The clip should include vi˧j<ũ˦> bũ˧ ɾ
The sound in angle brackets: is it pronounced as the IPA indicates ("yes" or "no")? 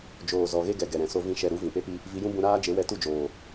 yes